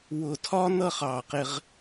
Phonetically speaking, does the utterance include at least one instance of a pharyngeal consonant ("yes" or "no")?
no